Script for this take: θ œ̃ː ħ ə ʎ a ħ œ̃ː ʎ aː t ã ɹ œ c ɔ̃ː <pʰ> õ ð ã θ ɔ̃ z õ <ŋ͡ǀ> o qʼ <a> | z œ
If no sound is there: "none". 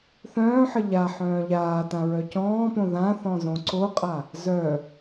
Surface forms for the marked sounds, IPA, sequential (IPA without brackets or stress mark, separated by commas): p, ǀ, a